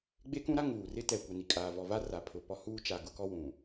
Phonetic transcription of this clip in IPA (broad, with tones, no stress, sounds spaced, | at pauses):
ɡ͡b e˦ k ũ˦ ɾ a˦ ŋ uː˨ r ɪ˦ t ɛ˨ kʷ ɛ˨ n i˨ kʼ aː˨ v ɔ˨ v a˦ r a˨ pʰ ʊ˨ p ɔ˦ h uː˦ t͡ʃ a˨ ɡ ʊ˦ k ɔ˦ w ũ˨